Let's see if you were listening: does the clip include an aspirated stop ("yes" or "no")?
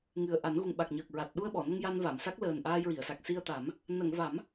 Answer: no